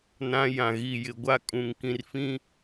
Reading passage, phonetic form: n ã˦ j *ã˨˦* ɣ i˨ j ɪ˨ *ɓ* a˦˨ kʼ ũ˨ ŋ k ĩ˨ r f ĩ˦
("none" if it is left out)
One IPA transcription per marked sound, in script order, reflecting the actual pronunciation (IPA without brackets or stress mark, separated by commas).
ã˨, ɡʷ